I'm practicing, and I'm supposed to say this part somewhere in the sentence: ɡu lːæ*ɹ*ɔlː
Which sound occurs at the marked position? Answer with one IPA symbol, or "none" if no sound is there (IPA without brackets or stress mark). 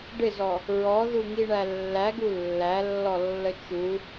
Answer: lː